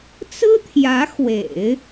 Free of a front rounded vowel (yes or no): yes